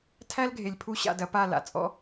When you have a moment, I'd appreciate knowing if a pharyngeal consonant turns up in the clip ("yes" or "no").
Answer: no